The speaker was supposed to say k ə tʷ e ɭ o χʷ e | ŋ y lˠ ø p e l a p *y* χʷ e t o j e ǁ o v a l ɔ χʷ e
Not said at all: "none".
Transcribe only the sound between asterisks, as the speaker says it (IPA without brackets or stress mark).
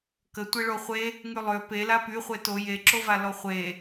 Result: y